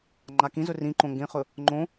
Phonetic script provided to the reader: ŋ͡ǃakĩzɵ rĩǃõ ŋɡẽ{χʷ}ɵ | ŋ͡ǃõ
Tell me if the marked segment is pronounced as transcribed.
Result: no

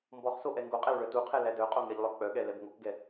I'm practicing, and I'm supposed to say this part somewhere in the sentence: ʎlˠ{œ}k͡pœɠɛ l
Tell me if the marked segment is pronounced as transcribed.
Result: yes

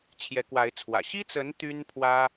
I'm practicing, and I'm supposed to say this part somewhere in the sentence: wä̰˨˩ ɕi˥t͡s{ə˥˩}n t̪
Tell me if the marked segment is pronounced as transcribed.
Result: no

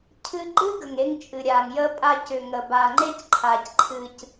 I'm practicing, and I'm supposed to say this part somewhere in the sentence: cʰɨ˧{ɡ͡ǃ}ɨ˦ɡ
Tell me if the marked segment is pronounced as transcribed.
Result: yes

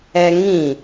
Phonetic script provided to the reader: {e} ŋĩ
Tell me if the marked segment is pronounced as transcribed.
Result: no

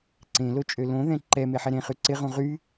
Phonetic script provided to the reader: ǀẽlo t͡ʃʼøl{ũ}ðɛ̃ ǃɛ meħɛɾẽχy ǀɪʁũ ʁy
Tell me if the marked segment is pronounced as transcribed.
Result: no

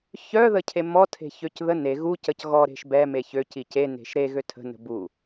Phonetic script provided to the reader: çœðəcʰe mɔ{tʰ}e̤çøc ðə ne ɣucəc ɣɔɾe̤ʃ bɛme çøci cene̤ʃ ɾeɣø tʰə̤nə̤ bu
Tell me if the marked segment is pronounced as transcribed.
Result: yes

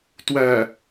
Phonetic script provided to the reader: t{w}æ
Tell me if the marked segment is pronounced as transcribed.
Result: yes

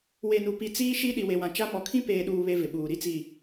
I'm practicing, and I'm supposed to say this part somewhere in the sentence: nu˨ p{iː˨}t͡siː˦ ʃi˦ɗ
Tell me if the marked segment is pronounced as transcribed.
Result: no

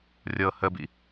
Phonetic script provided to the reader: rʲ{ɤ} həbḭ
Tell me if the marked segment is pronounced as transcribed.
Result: yes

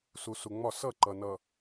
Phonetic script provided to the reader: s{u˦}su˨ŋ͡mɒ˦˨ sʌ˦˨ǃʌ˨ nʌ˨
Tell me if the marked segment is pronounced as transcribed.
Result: no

